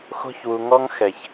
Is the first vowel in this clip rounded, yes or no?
yes